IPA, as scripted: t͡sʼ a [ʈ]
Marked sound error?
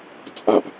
yes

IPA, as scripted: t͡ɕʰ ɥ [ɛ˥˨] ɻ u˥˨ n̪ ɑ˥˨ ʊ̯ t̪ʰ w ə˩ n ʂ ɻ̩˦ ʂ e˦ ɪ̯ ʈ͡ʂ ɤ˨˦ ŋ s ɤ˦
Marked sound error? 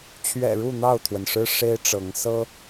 yes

